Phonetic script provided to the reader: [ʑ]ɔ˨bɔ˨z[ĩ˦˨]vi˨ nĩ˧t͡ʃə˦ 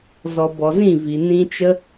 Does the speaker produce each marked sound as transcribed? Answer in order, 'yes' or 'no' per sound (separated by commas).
no, yes